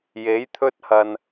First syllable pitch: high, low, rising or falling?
rising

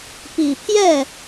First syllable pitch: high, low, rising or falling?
low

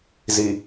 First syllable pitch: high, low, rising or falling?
low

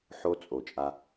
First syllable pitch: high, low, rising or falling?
high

